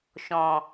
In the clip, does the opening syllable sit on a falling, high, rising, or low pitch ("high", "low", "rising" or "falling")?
low